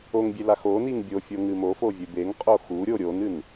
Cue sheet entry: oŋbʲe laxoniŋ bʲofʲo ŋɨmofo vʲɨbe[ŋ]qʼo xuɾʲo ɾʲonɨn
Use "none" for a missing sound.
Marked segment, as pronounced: ŋ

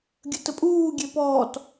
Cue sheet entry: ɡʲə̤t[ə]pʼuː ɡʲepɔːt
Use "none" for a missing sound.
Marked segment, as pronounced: ə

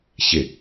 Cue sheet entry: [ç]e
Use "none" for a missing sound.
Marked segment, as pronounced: ç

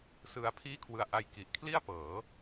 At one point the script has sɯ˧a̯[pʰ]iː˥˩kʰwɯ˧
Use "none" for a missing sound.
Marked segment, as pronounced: pʰ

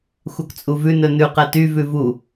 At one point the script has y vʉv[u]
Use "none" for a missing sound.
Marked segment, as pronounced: u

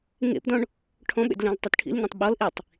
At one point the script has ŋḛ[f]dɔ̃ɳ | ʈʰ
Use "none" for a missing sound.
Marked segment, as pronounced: p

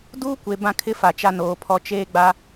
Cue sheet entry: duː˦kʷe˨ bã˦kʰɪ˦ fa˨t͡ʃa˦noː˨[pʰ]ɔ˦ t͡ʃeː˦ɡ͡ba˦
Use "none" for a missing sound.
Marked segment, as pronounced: pʰ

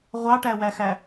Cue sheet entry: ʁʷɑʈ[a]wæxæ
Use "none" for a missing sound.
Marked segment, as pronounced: æ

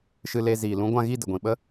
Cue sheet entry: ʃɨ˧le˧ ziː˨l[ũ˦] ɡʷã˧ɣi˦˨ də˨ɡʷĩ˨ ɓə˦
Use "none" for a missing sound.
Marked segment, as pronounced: ũ˦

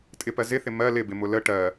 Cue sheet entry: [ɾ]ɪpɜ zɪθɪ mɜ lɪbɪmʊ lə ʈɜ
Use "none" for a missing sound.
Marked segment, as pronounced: tʼ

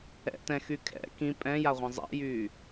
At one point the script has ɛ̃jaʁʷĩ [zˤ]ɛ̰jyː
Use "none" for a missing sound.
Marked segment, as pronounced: zˤ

